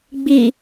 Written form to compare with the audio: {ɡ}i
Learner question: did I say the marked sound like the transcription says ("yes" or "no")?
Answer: no